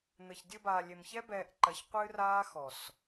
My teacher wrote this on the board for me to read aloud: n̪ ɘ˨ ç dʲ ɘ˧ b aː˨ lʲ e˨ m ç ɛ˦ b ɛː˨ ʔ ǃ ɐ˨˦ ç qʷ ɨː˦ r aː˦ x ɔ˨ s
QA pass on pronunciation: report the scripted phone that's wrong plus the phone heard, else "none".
none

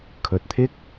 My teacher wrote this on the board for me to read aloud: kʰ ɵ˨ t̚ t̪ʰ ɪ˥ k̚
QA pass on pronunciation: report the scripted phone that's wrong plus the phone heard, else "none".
none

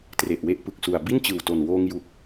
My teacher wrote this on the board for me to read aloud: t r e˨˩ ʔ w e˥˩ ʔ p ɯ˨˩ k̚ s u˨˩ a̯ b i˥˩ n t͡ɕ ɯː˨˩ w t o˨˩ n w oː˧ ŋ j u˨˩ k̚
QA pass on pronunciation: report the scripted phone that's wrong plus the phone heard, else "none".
none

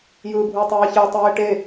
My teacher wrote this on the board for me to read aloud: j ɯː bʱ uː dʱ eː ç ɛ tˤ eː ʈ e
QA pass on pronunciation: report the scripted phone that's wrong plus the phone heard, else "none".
dʱ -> tˤ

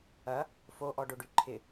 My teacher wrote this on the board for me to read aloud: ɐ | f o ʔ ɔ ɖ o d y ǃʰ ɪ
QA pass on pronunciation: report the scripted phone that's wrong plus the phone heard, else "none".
d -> ɖ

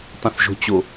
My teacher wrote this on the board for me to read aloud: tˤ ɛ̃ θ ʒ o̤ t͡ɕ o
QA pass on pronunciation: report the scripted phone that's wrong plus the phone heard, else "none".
none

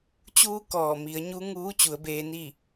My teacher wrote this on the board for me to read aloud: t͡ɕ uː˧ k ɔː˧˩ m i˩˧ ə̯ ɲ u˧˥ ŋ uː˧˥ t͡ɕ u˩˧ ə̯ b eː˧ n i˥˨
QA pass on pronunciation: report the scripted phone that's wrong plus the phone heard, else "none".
none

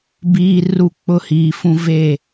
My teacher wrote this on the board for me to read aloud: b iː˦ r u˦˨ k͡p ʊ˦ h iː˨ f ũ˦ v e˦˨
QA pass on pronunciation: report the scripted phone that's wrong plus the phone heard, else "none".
none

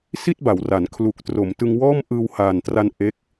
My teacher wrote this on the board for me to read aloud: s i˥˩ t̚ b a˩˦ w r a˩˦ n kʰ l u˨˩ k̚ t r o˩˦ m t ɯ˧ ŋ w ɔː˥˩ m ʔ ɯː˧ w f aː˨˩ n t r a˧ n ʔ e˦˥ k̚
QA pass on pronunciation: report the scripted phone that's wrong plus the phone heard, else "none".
f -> h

